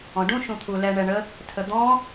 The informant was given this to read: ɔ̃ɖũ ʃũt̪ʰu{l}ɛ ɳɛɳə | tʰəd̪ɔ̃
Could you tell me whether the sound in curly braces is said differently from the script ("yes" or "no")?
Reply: no